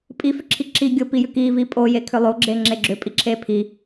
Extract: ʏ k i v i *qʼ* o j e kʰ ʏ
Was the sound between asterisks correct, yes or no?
no